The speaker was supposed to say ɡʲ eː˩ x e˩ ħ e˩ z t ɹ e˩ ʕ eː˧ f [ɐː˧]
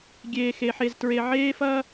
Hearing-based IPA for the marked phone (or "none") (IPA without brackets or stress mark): ɐː˧